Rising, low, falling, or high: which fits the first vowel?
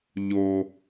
low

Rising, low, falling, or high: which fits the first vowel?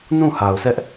falling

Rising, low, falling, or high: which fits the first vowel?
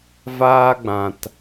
high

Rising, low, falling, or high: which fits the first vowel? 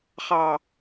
low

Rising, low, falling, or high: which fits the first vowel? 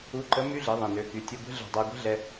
rising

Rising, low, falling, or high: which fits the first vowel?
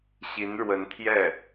rising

